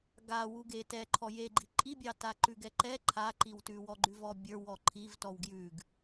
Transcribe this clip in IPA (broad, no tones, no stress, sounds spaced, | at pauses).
ɡ a w u ɡ e t ɛ ǃʰ ɔ j e ɡ͡ǃ i ǃʼ i bʲ ɑ t a ǃ ʉ ɡ ɛ ǃ ɛ ǃʰ a ǃ i w t ʉ w ɔ ɡ͡ǃ ʉ v ɔ bʲ ə˞ w ɔ ǃʰ i v t ɔ w ɡ j ʉ ɡ